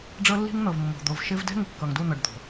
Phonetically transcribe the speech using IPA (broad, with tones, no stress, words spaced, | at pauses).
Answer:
ɖ͡ʐɤ˦lːi̤˦ŋn̪ɤ˨vmːo̤˨ d̪o˨vʃɪ˦v dɛ̤˦ŋɪ˨kːʌ˨ŋ du˦˨n̪ʌ˨ɖ d̪o̤˨